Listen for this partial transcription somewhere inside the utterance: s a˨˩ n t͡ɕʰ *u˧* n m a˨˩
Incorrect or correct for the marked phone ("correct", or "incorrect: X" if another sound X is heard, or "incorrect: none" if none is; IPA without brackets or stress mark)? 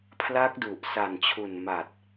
incorrect: u˨˩